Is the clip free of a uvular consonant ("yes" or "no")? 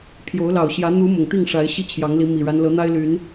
yes